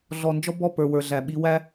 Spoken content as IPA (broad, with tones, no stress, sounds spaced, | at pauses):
ɮ ɔ˨ n d͡ʒ ɔ˦ b ɔ˦˨ p ə˞˨ w ə˞˨ ɮ æ˨ ɓ i˦ w æ˦